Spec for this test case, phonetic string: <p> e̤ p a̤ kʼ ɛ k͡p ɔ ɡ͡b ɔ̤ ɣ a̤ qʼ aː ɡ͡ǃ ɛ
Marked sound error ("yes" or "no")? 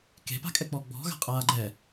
yes